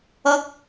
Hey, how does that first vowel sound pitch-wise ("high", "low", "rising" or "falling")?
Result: high